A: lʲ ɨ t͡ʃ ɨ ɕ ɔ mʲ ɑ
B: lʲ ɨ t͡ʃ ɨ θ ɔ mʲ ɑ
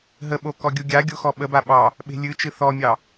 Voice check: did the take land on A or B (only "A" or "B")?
B